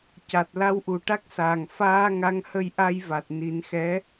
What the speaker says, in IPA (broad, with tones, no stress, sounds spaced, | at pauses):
c a˨˩ t̚ l a˧ w ʔ u˨˩ ʈ a˦˥ k̚ s aː˨˩ ŋ f aː˧ ŋ a˧˥ ŋ h ə˧ j ʔ a˧ j v a˨˩ t̚ n i˨˩˦ n x ɛ˧˥